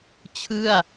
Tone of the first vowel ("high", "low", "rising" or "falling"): falling